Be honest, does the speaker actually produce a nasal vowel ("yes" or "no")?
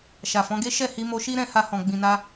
yes